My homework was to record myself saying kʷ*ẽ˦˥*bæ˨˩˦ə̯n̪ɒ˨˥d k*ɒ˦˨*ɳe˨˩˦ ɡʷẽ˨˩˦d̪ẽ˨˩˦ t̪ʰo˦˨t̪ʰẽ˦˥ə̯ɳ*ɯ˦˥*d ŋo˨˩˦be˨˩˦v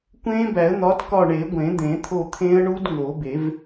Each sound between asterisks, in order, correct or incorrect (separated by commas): correct, correct, incorrect